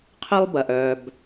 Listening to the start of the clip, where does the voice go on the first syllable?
high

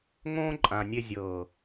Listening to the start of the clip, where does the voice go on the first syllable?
high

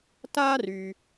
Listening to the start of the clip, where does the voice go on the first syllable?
high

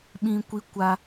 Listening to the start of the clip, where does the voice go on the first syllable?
high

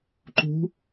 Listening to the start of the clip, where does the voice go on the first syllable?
rising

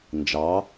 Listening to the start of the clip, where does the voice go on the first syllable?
rising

